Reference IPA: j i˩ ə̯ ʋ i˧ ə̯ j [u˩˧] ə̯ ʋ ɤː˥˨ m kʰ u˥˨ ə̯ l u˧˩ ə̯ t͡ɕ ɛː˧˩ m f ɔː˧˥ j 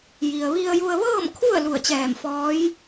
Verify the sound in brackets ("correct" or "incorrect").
incorrect